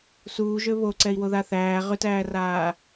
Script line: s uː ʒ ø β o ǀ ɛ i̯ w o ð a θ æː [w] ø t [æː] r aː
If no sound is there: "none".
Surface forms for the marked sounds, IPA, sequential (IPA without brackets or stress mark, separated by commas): ʁ, æː